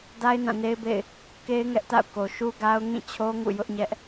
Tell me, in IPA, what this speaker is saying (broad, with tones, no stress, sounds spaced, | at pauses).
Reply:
d a˦ ɪ̯ n ã˦˨ n e˦ ɪ̯ b ḛ˦˨ ɪ̯ | k e˦ ɪ̯ ŋ ɛ˦ ʔ t a̰˦˨ ʊ̯ k o˨ ʃ u˦ ɡ a˦ ʊ̯ ŋ ĩ˦˨ t͡ɕʰ o˦ ŋ ṵ˦˨ j ʊ˦ ʔ ɲ ɛ˦ ʔ